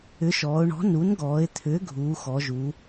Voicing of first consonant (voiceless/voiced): voiceless